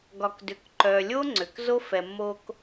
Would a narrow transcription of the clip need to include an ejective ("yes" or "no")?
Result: no